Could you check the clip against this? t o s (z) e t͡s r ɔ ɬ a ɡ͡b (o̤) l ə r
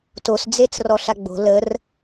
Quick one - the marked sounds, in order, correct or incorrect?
incorrect: d͡z, correct

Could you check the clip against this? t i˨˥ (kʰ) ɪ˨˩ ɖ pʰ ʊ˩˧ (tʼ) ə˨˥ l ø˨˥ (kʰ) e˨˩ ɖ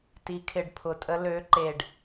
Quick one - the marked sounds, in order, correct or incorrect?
correct, correct, incorrect: ǃ

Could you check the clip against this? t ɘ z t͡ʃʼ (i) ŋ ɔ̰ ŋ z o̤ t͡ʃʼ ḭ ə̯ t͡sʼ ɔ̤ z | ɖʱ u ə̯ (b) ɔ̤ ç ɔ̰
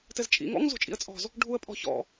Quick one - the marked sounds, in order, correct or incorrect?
incorrect: ḭ, incorrect: pʼ

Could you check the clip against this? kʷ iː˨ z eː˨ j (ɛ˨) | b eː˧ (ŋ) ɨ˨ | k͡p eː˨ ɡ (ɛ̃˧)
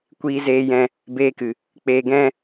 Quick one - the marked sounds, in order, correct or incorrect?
incorrect: ɛ̃˨, incorrect: k, incorrect: ɛ̃˦

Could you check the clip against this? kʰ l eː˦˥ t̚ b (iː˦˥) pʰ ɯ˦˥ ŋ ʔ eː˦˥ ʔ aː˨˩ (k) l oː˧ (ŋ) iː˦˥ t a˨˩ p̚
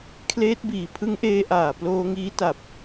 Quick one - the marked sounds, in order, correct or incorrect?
incorrect: iː˨˩, incorrect: p, correct

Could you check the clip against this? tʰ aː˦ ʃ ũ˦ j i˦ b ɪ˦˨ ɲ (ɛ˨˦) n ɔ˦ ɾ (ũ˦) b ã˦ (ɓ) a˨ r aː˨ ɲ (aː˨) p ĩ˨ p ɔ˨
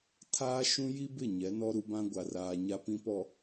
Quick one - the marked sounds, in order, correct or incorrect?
correct, incorrect: u˦, incorrect: ɡʷ, incorrect: a˨

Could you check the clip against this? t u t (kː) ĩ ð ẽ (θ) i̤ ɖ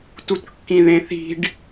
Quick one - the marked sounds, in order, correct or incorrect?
correct, correct

